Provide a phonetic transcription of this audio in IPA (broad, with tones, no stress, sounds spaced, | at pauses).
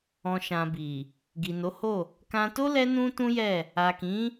ɔ̃˨ ʃ ã˨ b i˨ | ɡ i˨ n o˨˦ h o˦˨ | k ã˧ t o˦ l ɛ˦ n ũ˦ t ũ˦ j ɛ˦˨ | a˨ k ĩ˨˦